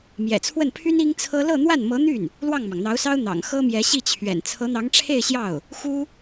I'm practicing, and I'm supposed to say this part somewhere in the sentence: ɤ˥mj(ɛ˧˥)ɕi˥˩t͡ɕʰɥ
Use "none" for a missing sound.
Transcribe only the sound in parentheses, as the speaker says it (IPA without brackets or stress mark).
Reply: ɛ˧˥